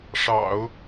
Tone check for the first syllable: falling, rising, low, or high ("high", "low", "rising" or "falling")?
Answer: low